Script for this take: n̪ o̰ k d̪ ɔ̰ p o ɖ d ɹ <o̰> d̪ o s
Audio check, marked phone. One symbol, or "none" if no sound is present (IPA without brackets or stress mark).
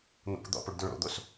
o̰